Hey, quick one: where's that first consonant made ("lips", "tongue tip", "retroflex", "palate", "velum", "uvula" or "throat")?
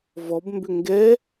lips